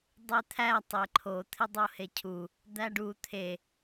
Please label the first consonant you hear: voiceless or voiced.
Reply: voiced